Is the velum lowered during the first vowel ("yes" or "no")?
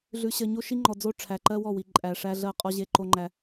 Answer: no